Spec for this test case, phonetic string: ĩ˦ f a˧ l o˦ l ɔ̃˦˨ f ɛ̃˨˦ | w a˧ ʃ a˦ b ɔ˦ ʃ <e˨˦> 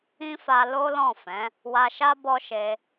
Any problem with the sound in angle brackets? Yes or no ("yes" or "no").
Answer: yes